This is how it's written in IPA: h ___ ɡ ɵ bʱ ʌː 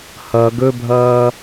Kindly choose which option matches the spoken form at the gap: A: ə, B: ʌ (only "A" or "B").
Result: B